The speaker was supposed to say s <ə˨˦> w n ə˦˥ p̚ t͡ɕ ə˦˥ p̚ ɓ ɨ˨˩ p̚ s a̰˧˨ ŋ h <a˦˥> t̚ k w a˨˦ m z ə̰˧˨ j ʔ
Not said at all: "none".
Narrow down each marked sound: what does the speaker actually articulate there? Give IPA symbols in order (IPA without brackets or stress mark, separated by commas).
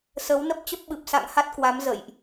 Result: ə˨˦, a˦˥